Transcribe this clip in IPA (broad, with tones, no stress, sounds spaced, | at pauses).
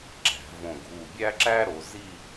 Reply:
ǁ æ̤˩˧ v õ˧˩ ɡʱ u˧˩ bʲ æ˥ ǁ æ˥ ɾ o˩˧ z i˥˧